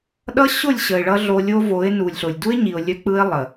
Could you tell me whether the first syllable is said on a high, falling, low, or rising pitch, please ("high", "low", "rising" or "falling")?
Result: high